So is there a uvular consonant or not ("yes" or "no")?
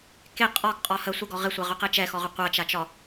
yes